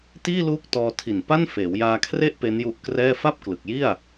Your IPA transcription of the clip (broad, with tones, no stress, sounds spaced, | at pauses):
t iː˥˩ l uː˦˥ k̚ t ɔː˧ tʰ i˨˩ n p a˥˩ n f eː˩˦ w j aː˧ kʰ r e˥˩ ʔ p e˦˥ n j u˦˥ ʔ k r ɛː˥˩ f a˥˩ p̚ k l ɯ˨˩ k̚ j i˥˩ a̯